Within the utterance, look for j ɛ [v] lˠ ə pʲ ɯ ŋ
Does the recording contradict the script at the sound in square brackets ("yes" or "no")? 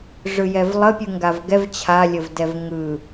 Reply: no